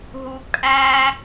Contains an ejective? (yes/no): yes